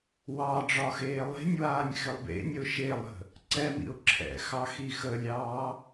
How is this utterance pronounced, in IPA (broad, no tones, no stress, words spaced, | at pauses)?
wɑ ɖ͡ʐɒxeːlˠe̤nʲwaːnʲ xɪlˠbḛnʲəʊ̯ ʃelˠə̤ | ǀɛmḭʊ̯ ǁʰɛ̰xɑ xixəlʲɑː